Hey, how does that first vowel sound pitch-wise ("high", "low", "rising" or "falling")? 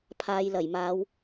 low